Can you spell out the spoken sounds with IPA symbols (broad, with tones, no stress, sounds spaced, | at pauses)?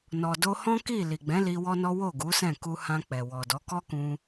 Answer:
n ɔ˨ d o˧ h ɔ̃˦ k i˦˨ l i˨ ɡ͡b ɛ̃˨˦ l i˧ w ɔ˦ n ɔ˦ w o˦˨ ɡ u˨˦ s ɛ̃˦˨ k u˧ h ã˧ k͡p ɛ˨ w ɔ˨ d ɔ˨˦ k ɔ˦ k ũ˧